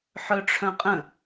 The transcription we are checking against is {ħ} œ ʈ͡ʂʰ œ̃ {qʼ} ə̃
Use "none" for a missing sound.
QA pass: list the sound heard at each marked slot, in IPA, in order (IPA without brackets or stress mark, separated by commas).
ħ, qʼ